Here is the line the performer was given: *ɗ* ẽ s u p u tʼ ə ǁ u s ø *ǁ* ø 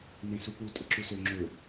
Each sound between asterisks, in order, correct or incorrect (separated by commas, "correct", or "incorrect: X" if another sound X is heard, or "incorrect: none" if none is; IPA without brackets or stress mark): incorrect: n, incorrect: ŋ͡ǁ